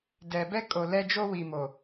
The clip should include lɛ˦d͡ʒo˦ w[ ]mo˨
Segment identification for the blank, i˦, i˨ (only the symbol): i˨